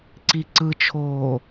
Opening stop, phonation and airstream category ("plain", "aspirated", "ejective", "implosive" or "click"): click